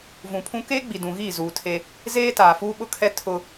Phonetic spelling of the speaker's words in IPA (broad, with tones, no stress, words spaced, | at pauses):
vũ˨pʰũ˦ keː˦ɡ͡bi˨ dũ˨ɣiː˦˨zuː˨ tʰe˦ | zeː˦ taː˨fuː˦ɓʊ˦kʰɛ˦ tʰʊ˦